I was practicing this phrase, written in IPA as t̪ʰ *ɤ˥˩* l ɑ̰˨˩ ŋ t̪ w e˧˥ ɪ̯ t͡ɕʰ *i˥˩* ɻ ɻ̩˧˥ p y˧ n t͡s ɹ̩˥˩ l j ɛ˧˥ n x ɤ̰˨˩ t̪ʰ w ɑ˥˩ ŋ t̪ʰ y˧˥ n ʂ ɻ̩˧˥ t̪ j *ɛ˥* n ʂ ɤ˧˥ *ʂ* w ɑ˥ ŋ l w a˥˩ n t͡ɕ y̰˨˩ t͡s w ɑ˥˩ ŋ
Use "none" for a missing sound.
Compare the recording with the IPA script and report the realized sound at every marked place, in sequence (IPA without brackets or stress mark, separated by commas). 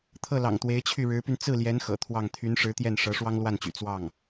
ɤ˥˩, y˥˩, ɛ˥˩, ʂ